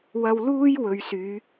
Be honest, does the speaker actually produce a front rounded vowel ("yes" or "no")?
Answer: yes